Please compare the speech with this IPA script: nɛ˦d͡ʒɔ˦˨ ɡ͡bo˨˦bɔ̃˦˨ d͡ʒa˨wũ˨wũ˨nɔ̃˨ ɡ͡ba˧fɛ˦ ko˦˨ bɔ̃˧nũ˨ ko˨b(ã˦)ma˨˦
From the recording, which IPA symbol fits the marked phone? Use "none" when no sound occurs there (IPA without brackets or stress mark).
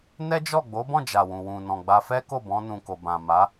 ã˨